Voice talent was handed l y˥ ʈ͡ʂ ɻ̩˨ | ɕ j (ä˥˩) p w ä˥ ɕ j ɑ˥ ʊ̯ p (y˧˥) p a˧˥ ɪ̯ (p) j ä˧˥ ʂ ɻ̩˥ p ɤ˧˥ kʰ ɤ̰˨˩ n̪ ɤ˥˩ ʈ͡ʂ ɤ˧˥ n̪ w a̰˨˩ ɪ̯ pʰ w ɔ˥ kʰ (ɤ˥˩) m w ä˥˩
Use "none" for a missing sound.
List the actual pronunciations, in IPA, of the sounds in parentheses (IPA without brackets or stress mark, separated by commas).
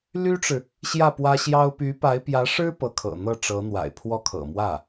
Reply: ä˥˩, y˧˥, p, ɤ̰˨˩